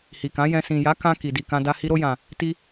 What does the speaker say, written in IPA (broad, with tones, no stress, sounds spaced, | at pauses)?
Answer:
h i˨ k ã˨˦ j ɛ̃˧ s ĩ˨ j a˨˦ k ã˧ k i˨ d i˨ k ã˧ d a˧ h i˧ ɾ o˧ j ã˨ | t i˧